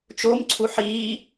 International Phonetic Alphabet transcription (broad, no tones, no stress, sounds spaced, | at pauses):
t͡ʃ o m ǀʰ u ħ iː